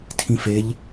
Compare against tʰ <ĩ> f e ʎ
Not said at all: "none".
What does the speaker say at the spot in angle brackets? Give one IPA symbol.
ĩ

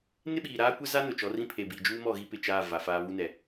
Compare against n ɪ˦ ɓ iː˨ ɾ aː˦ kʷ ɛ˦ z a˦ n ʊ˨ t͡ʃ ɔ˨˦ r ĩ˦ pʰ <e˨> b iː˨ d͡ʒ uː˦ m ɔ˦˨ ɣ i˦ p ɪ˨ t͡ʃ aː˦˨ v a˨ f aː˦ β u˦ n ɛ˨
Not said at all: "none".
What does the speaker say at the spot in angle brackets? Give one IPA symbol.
e˨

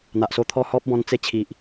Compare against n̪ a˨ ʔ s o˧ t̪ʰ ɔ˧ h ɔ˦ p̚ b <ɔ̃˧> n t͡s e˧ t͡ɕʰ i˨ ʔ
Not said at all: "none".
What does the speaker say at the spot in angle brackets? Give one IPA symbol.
ɔ̃˧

